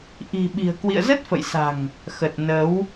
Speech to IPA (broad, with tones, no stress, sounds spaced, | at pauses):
ʔ i̤˨˩ ɓ i̤˨˩ ə̯ k w ḭ˧˨ ə̯ z ə˦˥ t̚ f ə̰˧˨ j s a̤˨˩ ŋ | x ə˨˩ t̚ n ə˨˦ w